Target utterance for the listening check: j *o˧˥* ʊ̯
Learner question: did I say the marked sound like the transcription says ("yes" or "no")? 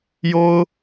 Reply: no